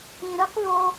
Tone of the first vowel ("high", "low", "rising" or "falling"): low